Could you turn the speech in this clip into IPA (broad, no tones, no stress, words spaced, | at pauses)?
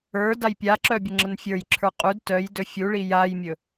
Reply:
ə˞ dajpʲaǁœ bʲəŋ͡ǁənfʲə˞jǁʰə˞ qʼud tœjdɵ fʲuɭi jajmʲɵ